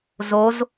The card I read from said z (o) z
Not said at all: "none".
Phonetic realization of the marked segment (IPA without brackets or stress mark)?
o